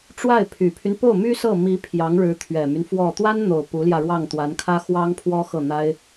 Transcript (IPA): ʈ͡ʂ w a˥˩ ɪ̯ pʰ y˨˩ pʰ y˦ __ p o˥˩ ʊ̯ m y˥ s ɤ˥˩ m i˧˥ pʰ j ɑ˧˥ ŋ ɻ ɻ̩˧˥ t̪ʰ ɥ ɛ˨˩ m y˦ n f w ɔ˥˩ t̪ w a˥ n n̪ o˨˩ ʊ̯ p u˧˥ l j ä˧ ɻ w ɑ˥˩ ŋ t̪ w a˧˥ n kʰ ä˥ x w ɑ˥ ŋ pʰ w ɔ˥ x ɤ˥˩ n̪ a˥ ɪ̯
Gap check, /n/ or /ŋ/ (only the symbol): n